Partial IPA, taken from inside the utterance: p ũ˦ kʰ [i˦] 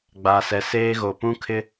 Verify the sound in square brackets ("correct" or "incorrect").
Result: incorrect